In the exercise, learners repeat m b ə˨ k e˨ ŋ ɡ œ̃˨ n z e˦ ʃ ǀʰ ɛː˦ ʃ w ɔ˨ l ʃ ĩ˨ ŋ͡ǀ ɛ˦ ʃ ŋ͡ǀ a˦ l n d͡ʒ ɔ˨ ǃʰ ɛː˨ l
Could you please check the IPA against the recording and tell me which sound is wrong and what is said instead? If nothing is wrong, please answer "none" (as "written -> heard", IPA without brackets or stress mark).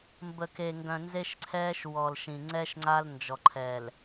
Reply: none